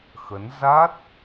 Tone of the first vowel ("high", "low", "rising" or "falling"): rising